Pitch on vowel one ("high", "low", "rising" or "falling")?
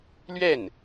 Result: falling